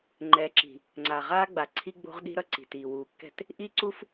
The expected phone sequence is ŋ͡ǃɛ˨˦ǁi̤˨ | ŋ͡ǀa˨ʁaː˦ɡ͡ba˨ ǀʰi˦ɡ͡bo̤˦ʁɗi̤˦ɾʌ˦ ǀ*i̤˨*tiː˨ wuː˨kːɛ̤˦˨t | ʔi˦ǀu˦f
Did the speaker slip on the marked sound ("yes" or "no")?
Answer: no